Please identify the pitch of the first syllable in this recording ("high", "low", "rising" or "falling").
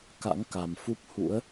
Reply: rising